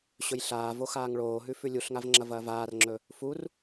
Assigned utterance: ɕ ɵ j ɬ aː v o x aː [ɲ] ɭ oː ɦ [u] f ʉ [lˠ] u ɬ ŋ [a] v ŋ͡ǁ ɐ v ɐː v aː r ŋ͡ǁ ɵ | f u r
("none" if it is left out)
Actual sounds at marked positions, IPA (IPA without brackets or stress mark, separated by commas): ŋ, ʉ, lʲ, a